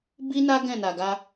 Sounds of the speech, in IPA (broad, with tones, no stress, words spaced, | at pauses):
bi˦na˦ ɡɛ̃˦˨na˨ ɡa˧